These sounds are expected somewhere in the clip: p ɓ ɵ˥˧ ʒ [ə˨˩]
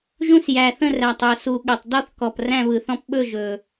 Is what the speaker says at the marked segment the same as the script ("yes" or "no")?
no